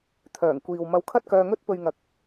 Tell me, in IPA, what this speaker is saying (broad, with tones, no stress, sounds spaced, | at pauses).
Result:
t̪ʰ œː˨˩ ŋ kʷ iː˨ w m ɐ˧ w kʰ ɐ˥ t̚ k œː˧ ŋ ɵ˥ t̚ p ɵ˨ ɥ ŋ ɐ˨˥ k̚